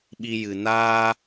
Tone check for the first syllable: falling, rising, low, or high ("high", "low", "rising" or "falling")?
high